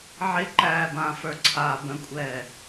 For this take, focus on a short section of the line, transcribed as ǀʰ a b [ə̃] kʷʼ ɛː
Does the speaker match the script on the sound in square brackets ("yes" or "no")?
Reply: yes